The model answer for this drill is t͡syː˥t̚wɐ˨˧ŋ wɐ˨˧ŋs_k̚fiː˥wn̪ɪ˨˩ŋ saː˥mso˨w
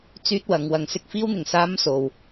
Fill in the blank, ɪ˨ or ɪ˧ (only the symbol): ɪ˧